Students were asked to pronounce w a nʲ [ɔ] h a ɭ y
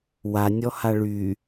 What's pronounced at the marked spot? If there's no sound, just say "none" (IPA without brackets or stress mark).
ɔ